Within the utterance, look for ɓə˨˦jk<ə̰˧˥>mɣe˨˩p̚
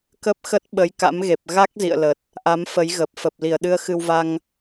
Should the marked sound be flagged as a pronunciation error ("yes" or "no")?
yes